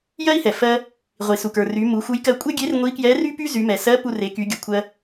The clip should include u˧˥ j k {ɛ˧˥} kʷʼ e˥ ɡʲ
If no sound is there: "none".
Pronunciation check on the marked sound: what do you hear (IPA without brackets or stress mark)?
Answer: ɜ˧˥